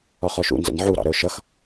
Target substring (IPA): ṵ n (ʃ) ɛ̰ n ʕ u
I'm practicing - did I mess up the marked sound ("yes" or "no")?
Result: yes